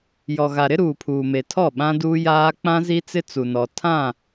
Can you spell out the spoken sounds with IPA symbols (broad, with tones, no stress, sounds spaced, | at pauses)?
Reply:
j ɔ˨ ɣ a˨ ɾ ɪ˦ ɾ uː˨ pʰ uː˨ m e˨ tʰ ɔ˦˨ ɓ ã˦ d uː˦ j aː˦ k͡p ã˦ z i˦ t͡s ɪ˦ t͡s u˨ n ɔ˨ tʰ ã˦˨